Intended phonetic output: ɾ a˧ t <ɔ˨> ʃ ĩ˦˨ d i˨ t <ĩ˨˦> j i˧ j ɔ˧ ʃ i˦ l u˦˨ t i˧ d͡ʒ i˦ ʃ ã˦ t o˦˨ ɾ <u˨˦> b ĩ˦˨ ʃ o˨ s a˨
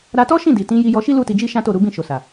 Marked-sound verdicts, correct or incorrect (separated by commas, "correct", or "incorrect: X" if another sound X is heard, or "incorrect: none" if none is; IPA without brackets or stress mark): incorrect: ɔ˦, correct, correct